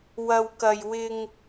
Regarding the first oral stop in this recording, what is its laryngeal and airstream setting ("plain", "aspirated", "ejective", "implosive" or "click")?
plain